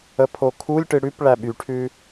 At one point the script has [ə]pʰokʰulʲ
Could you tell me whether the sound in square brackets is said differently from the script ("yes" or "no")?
no